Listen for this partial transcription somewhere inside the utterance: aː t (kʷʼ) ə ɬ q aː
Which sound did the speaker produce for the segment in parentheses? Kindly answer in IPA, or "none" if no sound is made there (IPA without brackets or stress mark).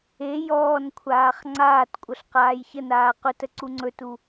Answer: kʷʼ